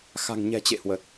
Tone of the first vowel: low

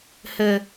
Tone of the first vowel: low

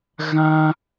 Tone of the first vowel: high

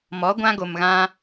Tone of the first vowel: rising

